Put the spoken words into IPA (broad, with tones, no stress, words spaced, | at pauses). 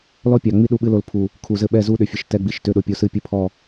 lɔ˦pʲɑ˨ŋ͡mi˦ ɗu˦ɓɨ˦lo˨lpʰu˨ | kʰu˨zɘ˦˨ ɓɛ˦˨zu˦ɗʏ˨fʲɘ˨ʃ tɛ˦ɡ͡bi˨ʃ tʏ˦˨ɗo˦˨pʲo˦ sɨ˦pʲɘ˦pʰɔ˦˨